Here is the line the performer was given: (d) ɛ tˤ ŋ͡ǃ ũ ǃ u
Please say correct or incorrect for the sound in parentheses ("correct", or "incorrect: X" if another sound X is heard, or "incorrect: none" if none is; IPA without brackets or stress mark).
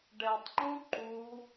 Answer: incorrect: ɖ